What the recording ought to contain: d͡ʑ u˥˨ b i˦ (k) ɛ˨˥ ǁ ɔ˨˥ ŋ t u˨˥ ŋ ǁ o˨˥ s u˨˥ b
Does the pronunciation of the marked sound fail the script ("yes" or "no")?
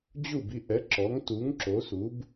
yes